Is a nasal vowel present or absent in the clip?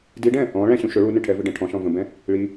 present